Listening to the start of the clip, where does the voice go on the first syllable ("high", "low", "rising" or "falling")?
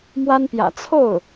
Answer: high